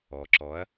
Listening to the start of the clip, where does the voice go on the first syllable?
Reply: low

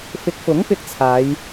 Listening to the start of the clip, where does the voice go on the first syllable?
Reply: rising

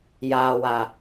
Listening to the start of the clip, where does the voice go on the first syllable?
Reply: low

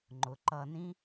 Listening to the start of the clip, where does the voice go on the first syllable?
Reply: low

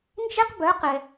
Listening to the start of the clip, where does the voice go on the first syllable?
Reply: high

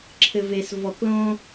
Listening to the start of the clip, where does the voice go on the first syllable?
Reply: low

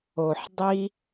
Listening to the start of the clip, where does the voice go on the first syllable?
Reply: low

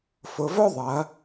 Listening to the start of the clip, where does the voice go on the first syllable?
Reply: low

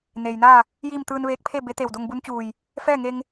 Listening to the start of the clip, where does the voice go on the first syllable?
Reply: low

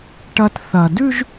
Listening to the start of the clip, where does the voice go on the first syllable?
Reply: high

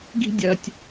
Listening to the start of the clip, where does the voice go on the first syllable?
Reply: high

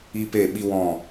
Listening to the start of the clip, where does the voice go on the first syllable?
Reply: high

